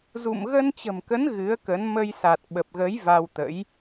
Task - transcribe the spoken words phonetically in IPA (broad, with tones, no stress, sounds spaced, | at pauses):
z ṵ˧˨ m ɣ ə˧ n t͡ɕ ə̤˨˩ m k ə˨˦ n ɣ ɨ˨˦ ə̯ k ə˨˦ n m ə˧ j s a˨˩ t̚ ɓ ə˨˩ p̚ ɣ ə˨˦ j v a˧ w t̪ ə̰˧˥ j